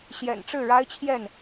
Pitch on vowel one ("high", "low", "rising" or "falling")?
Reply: low